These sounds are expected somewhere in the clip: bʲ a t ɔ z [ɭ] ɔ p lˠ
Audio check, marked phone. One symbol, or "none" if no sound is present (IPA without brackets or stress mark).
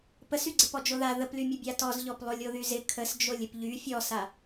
ʎ